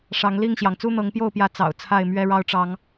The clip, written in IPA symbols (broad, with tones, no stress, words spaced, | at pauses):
ʂɑ˨˦ŋ li˥˨ŋɕjɑ˩ŋ t͡su˦n̪ɤ˨˦ŋpjo˥˨ʊ̯pjä˨˦ t͡sɑ̰˨˩ʊ̯t͡sʰa˥˨ɪ̯ mɥɛ˦ɻɑ˦ʊ̯ʈ͡ʂɑ˨˦ŋ